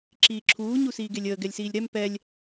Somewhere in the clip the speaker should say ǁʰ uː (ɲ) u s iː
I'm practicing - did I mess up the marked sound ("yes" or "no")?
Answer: no